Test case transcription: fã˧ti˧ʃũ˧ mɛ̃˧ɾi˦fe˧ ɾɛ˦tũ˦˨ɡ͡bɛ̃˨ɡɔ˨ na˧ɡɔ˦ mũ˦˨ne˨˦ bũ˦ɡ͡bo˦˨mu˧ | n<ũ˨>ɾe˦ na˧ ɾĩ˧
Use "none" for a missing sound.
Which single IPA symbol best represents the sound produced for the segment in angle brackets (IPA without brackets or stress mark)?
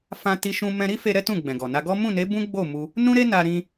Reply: ũ˦